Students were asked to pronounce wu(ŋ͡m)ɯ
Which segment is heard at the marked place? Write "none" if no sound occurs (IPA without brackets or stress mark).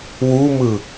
m